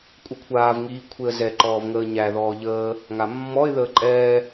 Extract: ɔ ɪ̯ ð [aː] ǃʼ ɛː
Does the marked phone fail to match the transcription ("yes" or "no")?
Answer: yes